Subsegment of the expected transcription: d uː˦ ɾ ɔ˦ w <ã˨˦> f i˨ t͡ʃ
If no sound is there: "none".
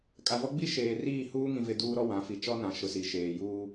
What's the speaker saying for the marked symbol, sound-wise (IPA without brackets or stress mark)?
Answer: ã˨˦